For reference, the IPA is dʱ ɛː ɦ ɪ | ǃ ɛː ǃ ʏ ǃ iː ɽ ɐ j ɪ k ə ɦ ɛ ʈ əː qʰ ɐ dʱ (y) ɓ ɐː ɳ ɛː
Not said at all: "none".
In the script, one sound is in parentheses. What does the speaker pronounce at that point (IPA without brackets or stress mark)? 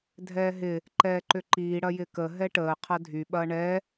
y